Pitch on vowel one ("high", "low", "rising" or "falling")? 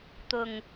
low